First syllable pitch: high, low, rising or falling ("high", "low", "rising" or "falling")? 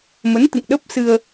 rising